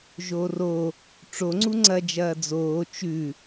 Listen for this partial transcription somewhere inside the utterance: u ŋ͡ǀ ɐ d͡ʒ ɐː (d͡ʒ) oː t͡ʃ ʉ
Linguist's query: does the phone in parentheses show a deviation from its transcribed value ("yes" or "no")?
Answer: yes